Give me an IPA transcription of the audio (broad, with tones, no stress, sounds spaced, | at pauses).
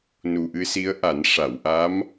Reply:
n u˨˩ ʔ ɨ˧ s i˧˥ ə̯ ʔ a˨˩˦ n ʂ a˨˩˨ w ʔ aː˧˥ m